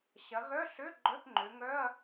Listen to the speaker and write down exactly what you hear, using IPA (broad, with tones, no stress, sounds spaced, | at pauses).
ɕ ɐ˩˧ ɣ œ˧˥˧ ɬ ø˧˥˧ ɡ͡ǃ œ˧˥˧ p ŋ͡ǃ ø˩˧ ŋ œ˧˥˧ ɐ̯